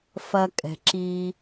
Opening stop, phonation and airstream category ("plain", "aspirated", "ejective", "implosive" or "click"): ejective